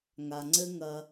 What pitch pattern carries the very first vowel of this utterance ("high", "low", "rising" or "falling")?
low